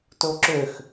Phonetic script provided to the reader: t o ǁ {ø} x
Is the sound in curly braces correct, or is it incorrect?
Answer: correct